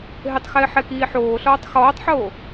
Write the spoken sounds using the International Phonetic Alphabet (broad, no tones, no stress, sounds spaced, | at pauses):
ɦ ɪ tˤ x ɪː ħ ɛ k iː ħ oː ɬ ɔː tˤ x ɔː tˤ ħ oː